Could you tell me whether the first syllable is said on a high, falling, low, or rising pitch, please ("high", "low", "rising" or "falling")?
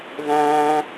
high